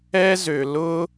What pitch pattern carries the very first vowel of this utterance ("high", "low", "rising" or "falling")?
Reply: high